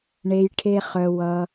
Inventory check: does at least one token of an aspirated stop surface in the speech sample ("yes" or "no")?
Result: yes